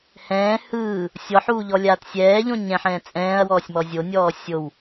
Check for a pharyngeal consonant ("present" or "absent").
present